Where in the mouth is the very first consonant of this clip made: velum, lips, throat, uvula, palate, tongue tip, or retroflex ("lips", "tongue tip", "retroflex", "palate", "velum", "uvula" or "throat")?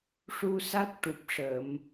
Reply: retroflex